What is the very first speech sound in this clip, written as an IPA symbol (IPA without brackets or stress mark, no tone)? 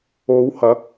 o